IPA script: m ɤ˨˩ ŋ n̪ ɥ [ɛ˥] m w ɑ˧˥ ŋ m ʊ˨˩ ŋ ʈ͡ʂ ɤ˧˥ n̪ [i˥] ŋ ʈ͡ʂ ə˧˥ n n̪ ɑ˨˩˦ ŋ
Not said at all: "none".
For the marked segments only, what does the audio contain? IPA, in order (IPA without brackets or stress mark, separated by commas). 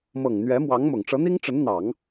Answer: ɛ˧˥, i˥